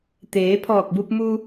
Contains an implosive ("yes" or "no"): no